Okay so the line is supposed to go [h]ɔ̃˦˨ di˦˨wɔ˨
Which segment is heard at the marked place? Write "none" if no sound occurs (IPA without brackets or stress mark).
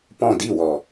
p